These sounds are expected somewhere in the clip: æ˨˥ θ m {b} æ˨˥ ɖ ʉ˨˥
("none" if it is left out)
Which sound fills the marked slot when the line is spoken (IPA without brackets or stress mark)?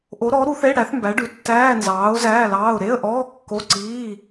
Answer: b